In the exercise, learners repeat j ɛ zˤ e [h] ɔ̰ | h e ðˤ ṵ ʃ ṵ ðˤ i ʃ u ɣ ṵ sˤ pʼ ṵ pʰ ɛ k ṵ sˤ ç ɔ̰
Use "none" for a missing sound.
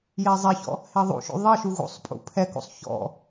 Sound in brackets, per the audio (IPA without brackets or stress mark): ç